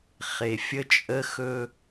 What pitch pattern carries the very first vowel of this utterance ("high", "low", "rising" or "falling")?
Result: low